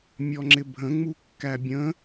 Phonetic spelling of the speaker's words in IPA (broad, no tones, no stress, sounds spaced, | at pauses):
mʲ ɔ ŋ͡ǁ ɪ bʱ ə̃ ŋ͡m u kː æ bʲ ə̃